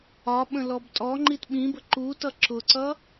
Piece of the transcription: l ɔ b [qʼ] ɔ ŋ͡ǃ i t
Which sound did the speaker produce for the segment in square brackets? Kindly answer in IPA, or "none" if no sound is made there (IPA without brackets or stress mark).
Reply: tʼ